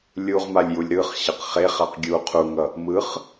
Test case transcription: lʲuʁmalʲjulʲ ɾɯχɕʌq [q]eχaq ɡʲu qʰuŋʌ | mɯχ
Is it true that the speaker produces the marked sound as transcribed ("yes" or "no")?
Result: no